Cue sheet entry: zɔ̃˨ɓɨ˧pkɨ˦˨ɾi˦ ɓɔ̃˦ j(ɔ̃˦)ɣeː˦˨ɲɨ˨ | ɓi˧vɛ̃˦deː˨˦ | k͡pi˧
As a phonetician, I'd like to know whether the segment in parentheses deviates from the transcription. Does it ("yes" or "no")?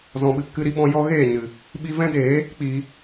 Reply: yes